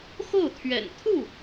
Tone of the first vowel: falling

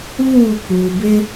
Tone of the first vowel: falling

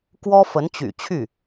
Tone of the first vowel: high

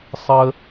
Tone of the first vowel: low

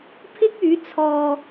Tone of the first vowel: high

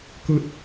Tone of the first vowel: high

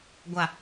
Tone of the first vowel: low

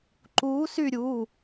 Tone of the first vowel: rising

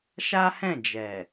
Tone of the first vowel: high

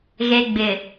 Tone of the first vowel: low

